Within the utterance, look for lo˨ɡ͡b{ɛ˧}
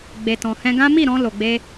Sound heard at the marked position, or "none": e˧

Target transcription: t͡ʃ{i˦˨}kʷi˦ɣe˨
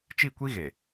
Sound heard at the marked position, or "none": i˦˨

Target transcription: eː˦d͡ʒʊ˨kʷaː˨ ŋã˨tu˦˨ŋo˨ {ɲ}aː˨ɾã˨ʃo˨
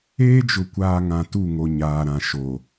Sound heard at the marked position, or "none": ɲ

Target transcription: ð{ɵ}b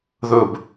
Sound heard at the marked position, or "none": ɵ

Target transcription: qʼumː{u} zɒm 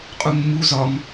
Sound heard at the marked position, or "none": u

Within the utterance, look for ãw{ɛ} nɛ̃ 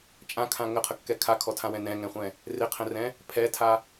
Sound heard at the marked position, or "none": ɛ̃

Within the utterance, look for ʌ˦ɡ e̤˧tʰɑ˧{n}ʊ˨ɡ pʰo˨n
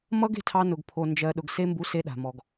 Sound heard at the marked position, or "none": n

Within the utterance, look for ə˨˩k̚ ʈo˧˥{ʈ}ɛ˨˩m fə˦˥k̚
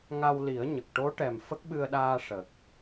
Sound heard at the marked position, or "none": ʈ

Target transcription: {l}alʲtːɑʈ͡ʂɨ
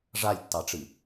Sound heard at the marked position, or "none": ʐ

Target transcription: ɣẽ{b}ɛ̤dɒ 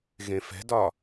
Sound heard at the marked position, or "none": f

